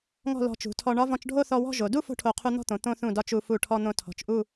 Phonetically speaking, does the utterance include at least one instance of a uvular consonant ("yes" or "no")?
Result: yes